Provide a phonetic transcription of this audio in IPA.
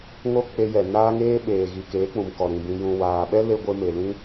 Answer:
ŋ o˦ k͡p e˧ j ɛ˨ n aː˦ ŋ eː˦ ɓ eː˨ ɣ i˨ k eː˨˦ k͡p ũ˨ m k ɔ˨ ɾ ĩ˨ b ĩ˨ j ũ˨ w aː˨ ɓ ɛ˦ l e˧ ɡʷ e˦ m e˨ l ĩ˦

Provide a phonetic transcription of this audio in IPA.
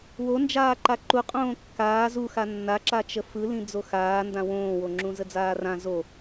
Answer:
w o n d͡ʒ aː ǃ a ǃ u qʼ õː kː aː z u x a nː a ǁ a t͡ʃ ə f ɯ l ĩ d͡z o x aː n d ã w õː w o ŋ͡ǁ ũ z ə d͡z aː r ã z o

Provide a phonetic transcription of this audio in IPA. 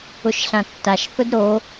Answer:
ʊ ʃ ɬ ã tː a ʃ θ ʊ d ɾ o

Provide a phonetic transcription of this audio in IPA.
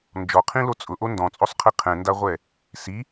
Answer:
n d͡ʒ ɔ qʰ ĩ l o t͡sʼ ʊ ʔ o n d ɔ̃ t͡sʼ o sˤ qʰ i qʰ ɛ̃ n d a ʁʷ ɛ | s i

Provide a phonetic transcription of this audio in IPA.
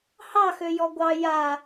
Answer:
h ɑ x ø j ɔ ɡʷ ɑ j a

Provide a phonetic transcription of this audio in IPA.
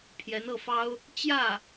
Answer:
pʰ j ɛ˧˥ n ɤ˥˩ f ɑ˥ ʊ̯ | t͡ɕ j ä˥˩

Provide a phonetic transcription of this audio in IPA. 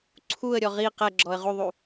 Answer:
ǀʰ u ə̯ ɾʲ ɔ ʁ i q ɛ ɡ͡ǁ ɔ ə̯ ʁ u ðˤ u

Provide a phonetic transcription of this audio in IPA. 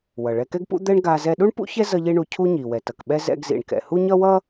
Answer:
w ʌ˩ ɭ ɛ˧ k ɛ˥ ɡ p ṵ˥ d̪ ɛ˥ ɳ ɡ a˧ z ɛ˧ ɗ u˥ ɳ p ṵ˥ ç ɛ˥ z ʌ˥ ʎ i˥ ɳ u˧ cʰ u˥ ɲ i˩ w ɛ˩ t ʌ˩ k ɓ ɛ˥ z ɛ̰˧ ɡ z ḭ˩ ɳ k ɛ̰˩ h u˥ ɲ ʌ˥ w ʌ˥

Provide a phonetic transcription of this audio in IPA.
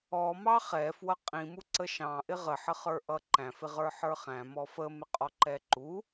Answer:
ɔ m ɑ χ ɛ f w ʌ qʼ ĩ m u ǀ ə ʃ ɑ̃ ʔ ɪ ʁ ə ħ ə χ ə˞ ʔ ʌ ǃ æ̃ f ɪ ʁ ə˞ ħ ə˞ χ æ̃ m ɔ f ə m ɪ qʼ ɔ ǃ ɛ ǃ u

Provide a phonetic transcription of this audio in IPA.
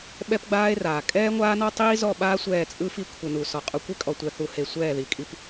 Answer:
ɓ ɛ˦ p ɡ͡b aː˦ e̯ r aː˨ kʼ ɛː˦ ŋʷ aː˦ n ɔ˦ tˤ iː˦ z ɔ˦˨ ɓ aː˦ sʷ ɛː˦˨ t͡sʼ ɯ˦ f i˦ kʷʰ ɯ˨ n u˨ s ɔ˨ qʼ u˨ kʷ e˦ kʼ ɔ˨ tʷ ɛ˨ θ u˨ h e˨ sʷ ɛː˦˨ ð i˨ kʼ i˦ p

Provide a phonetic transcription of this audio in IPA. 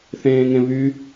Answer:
θ ẽː ŋ ẽ β y

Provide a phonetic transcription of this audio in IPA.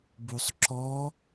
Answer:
b u sˤ ǁ ɔ

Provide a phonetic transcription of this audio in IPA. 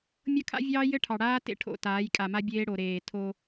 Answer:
mʲ ɤ˦ kʰ a̰˦ vʲ ɑː˦ j ɘ˦ ʈʰ ɑ˨ ɽ aː˦ t ḛ˦ ʈʰ o̰˦˨ t aː˨˦ j kʼ a˨ m a˦ bʲ eː˦ ɽ o˨ ɾ eː˨ tʰ o˦

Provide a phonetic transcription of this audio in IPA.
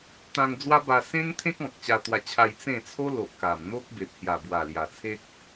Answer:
t̪ ã˧ ŋ d͡z w a˦ b a˧ s ẽ˦ ŋ t̪ʰ ẽ˦ k̚ ɔ̃˨ k̚ t͡ɕ a˧ t̪ w a˧ t͡ɕʰ a˧ j t͡s ẽ˥˧ t͡sʰ o˦ l o˨ ʔ k a˨˩ m n̪ o˦ k̚ b e˨ p̚ h j a˨˩ b w a˨˩ l j a˨˩ t͡sʰ e˦ k̚

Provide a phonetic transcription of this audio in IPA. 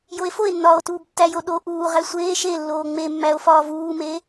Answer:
j o e̯ f o e̯ nː ɒː o̯ t uː b tː æ j o ɗ o ʔ uː ʁ æ sʷ eː ʃ e lː oː ŋ͡m e mː æ o̯ f ɒː v uː m eː

